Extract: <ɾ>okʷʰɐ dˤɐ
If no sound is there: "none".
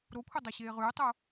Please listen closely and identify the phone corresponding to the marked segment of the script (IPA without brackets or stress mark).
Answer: ɾ